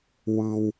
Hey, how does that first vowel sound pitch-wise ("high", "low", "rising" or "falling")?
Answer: low